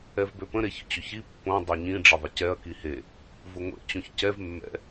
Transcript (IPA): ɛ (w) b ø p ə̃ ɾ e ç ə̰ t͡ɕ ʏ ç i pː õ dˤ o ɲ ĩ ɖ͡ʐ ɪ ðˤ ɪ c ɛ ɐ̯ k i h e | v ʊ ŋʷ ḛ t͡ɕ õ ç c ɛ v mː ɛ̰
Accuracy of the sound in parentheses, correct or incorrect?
incorrect